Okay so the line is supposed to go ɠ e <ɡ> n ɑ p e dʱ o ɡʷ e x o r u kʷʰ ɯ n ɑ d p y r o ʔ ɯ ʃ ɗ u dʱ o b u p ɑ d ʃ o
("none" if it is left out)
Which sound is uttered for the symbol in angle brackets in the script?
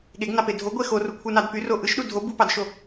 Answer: ɡ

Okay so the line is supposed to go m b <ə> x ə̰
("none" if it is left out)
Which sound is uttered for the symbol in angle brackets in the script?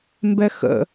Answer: ɛ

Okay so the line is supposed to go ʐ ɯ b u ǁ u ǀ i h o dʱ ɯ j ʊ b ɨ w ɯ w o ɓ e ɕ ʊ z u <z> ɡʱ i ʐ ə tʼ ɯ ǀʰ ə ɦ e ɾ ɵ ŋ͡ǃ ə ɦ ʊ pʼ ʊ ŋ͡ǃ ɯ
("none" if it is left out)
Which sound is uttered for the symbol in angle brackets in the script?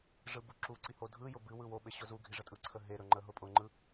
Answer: none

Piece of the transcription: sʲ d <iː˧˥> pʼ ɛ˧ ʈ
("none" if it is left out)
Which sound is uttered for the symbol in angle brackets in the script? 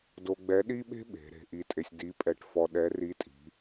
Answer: i˧˥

